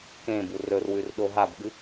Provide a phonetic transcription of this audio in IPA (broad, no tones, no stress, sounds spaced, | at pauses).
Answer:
k ẽ b u r ɵ r w ʉ r ɗ o ɦ a b ɠ ɨ